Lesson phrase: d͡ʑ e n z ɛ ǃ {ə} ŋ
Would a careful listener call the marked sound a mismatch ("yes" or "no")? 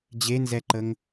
no